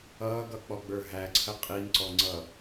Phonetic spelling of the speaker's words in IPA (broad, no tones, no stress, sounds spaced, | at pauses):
ʌː ɡ ʌ k͡p ɔ ɡ͡b ə˞ ɦ æ ǀʰ ə qʼ i n ǀ ɔ ŋ͡ǀ ʌ